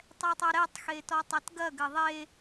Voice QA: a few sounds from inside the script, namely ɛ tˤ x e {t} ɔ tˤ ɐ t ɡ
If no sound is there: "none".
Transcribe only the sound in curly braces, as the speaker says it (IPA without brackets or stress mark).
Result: t